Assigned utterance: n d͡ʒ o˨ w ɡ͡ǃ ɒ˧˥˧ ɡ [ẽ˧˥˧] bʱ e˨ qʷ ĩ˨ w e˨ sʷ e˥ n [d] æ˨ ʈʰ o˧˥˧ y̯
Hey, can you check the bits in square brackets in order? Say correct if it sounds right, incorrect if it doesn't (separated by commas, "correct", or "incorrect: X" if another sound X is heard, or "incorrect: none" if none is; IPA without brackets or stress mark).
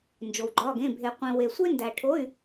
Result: correct, correct